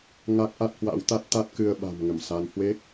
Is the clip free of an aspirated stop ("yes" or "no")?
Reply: yes